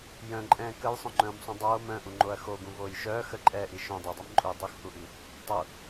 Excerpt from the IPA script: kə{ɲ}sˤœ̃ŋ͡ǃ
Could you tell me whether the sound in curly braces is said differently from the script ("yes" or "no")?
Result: yes